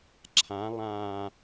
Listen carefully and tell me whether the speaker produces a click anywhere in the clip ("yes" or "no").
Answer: yes